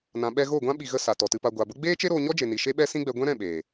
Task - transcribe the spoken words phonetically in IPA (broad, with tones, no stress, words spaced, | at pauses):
nã˨ɓɛ˧ ɣo˦˨ɡʷã˦ ɓi˨ɣə˧ sa˨tɔ˨tɨ˧pa˧ ɡʷa˨bə˦ ɡ͡beː˦t͡ʃe˦ɾoː˧ ɲɔ˦d͡ʒe˨ni˨ ʃe˦ɓɛ˦sĩ˦ɡ͡bɛ˧ ɡʷɛ̃˦ɾɛ̃˦˨ɓeː˨